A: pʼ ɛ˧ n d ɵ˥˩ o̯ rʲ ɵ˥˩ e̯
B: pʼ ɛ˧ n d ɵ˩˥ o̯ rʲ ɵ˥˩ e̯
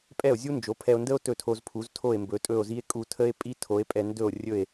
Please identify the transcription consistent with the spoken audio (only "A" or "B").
A